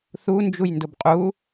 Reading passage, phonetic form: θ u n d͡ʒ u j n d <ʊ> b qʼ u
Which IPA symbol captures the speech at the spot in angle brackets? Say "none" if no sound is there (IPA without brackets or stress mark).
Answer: ʊ